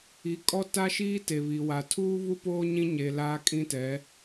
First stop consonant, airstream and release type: ejective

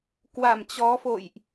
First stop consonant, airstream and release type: plain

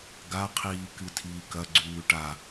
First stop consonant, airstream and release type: plain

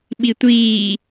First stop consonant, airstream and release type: implosive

